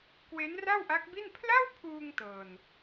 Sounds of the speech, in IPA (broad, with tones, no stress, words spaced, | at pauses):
kwe˦˥nra˥˩wʔa˦˥k̚bi˥˩n pʰla˥˩wpʰuː˧ŋ tɤː˧n